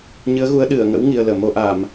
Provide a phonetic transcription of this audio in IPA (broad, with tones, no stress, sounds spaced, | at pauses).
ɲ ɨ˨˦ ə̯ ɣ u˨˦ ə̯ ɗ ɨ˧˩ ə̯ ŋ ə̰˧˥ w ŋ i˧ ə̯ l əː˧˩ m o˧ ʔ a˧˩˨ m